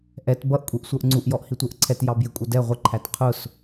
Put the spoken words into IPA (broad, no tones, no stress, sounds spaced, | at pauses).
ʔ ɛ t b ʌ ʔ kʷʼ i ʔ sʷ ə˞ ʔ ŋ͡ǀ u ʔ j ɔ ʔ h i tʷ ə˞ ʔ ǀʰ ɛ t j ɑ b j ɪ kʷʼ ʌ d ɛ ʁʷ ɪ ǃʰ æ t qʰ ʊ s